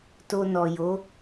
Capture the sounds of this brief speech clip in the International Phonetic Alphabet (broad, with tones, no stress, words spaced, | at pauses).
to˧nɔ˨jo˨˦